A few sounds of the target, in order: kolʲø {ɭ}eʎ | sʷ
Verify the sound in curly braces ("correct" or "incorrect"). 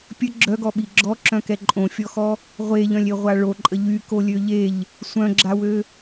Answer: incorrect